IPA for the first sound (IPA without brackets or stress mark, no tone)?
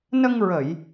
n